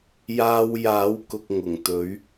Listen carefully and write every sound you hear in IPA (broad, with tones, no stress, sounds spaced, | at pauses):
j aː˧ w j aː˨˥ w k ʊ˧ k̚ ŋ ʊ˨˩ ŋ t̪ ɵ˨˥ ɥ